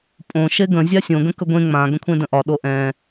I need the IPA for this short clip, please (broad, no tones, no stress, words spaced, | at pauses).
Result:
pʼõ ʃeɡə̃ zʲasʲõ ɡə̃kəɡʷẽ ŋ͡mã ɡə̃kʷʰẽdə̃ʔɒ ɗoʔɛ̃